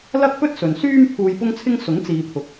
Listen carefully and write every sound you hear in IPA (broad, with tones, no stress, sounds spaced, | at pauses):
l ɐ˥ k̚ p ɵ˥ t̚ s ɵ˨ n s yː˥ m pʰ uː˧ j p ʊ˥ ŋ t͡sʰ ɪ˥ ŋ s ʊ˨˥ ŋ t͡s iː˨ t̪ʰ ʊ˨ k̚